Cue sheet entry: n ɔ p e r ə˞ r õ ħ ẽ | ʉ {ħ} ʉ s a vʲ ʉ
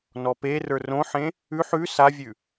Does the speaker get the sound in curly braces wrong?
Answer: no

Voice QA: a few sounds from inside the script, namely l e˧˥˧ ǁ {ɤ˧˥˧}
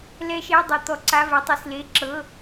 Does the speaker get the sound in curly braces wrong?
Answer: no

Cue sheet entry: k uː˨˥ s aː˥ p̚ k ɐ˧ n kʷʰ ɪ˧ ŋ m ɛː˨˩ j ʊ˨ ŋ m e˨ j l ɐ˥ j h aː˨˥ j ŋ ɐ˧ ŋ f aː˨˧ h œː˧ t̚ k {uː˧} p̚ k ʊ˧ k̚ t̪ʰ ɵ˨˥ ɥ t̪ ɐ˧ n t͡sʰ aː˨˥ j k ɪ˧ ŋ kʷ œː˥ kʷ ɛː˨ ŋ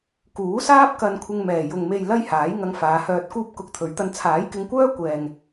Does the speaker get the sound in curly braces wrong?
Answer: yes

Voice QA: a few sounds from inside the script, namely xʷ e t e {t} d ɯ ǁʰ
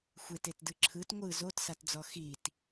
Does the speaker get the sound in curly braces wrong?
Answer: no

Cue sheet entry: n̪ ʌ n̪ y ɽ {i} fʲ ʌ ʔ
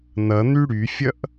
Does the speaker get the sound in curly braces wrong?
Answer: yes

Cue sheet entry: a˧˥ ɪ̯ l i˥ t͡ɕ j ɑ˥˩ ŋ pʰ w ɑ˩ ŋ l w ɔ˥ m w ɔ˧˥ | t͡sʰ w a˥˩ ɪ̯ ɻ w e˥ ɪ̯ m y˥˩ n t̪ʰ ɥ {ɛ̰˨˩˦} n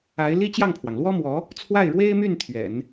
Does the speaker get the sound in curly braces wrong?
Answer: no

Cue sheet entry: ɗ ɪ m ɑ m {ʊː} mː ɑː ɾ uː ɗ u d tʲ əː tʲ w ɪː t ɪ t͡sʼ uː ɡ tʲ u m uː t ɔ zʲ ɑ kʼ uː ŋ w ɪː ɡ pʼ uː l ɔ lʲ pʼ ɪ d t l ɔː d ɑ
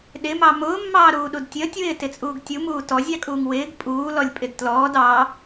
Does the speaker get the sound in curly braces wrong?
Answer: no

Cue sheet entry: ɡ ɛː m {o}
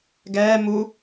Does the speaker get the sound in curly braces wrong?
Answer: yes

